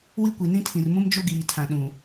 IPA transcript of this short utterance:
w i˦ kʷ i˨ n ĩ˦ tʰ ĩ˨ r m ũ˦ m d͡ʒ o˦ ɡ iː˨ tʰ ã˨ ɗ ũ˨

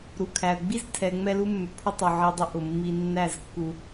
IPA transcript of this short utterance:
ɾ u˨ kʰ æ˨ ə̯ ɡ͡b i˦ z tʰ ɛ˨ ŋ͡m ɛ˧ l u˧ mː ʏ˨ pʰ ʊ˦ tˤ u˨ ʕ i˧ dˤ ʊ˦ ʔ ʊ˨ mː i˧ nː æ˦˨ z kː u˧

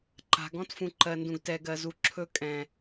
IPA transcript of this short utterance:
ǃ a̤˨ ɡ ɔ̃˦ t f ũ˨ ǃ ɜ˨ n d ũ˨ ɡ t ɛ˨ ɡ ɜ˨ z u˨ ǁʰ ɵ˦˨ kʼ ɛ̃˨

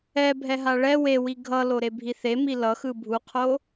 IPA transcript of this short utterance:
ɛ bʱ ɛ ɦ a ɭ ɛ w e w i ɡʱ ʌ l o ɾ e bʱ i θ e m i l ʌ x ɯ bʱ u qʰ o

